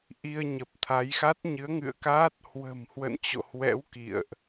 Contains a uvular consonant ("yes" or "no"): no